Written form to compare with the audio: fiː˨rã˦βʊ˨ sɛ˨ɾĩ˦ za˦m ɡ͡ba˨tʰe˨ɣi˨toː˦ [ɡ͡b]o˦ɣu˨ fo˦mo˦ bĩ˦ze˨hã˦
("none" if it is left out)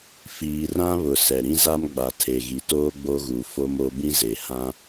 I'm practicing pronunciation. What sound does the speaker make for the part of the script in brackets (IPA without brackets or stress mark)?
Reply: ɡ͡b